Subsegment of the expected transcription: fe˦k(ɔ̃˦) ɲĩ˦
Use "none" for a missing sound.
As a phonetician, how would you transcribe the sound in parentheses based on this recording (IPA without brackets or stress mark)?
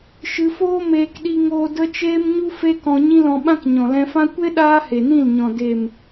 ɔ̃˧